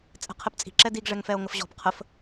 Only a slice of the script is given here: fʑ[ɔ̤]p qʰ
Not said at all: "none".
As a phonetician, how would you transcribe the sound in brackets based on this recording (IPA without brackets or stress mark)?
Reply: ɔ̤